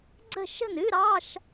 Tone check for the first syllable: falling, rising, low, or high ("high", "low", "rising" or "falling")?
falling